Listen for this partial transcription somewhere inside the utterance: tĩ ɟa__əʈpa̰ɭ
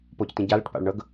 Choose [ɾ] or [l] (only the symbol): l